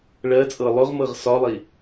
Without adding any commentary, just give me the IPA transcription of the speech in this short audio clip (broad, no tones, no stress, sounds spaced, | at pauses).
ɭ ɜ t͡sʼ ɤ lˠ ʊ ʁ m ɤ ʁ s ɒ lˠ i